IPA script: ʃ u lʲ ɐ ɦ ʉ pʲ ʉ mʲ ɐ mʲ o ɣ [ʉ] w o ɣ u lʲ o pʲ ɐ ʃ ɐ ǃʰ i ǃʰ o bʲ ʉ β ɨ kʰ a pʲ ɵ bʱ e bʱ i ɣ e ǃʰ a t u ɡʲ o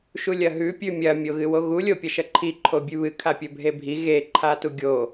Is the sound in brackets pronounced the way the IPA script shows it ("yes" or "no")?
no